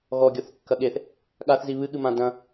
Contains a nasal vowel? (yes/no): yes